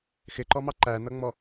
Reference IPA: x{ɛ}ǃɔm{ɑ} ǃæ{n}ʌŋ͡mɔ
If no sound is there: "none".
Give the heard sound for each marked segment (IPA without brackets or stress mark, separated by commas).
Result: ɪ, ɑ, n